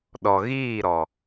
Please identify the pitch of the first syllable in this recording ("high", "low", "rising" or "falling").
low